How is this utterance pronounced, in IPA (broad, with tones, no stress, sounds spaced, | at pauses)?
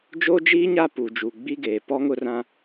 d͡ʒ oː˦ d͡ʒ iː˦ ɲ a˦˨ p u˨ d͡ʒ uː˨ ɡ͡b i˦ ɡ eː˨ p ɔ˦ ŋ ʊ˦ r ã˦